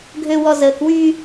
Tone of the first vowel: low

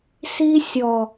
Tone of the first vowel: high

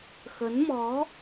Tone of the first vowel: rising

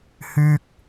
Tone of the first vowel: low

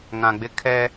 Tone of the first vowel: low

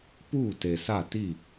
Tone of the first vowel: falling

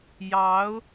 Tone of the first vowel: rising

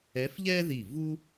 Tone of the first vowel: rising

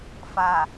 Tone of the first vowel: low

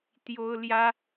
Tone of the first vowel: high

